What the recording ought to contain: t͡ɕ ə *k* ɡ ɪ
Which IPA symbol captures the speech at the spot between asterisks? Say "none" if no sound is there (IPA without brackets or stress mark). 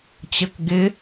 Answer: k